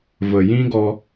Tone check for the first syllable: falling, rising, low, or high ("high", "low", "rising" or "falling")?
low